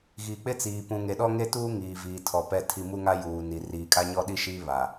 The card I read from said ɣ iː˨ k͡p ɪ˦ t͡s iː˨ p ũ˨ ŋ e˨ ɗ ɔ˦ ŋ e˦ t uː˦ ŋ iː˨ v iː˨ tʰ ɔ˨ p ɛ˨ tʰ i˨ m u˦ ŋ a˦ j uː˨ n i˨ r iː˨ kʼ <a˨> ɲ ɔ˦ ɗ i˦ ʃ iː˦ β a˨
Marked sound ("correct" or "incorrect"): incorrect